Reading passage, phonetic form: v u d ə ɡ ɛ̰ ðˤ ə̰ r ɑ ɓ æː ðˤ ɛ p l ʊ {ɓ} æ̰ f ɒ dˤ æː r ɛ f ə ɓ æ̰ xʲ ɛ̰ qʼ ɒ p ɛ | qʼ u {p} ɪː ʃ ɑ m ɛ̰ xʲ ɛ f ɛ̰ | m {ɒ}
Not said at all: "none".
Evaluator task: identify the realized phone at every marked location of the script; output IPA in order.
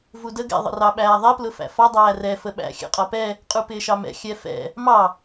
f, p, ɑ

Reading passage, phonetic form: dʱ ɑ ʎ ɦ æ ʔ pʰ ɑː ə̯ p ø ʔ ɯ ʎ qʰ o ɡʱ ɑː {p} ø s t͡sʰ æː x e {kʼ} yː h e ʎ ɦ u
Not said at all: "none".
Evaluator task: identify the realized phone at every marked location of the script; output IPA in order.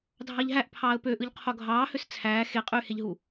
h, qʼ

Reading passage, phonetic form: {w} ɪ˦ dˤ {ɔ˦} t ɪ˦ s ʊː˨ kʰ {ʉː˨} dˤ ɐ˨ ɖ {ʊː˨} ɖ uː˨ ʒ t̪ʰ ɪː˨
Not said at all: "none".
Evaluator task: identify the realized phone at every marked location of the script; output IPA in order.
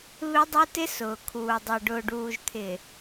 β, ʊ˦, uː˨, ʊː˨

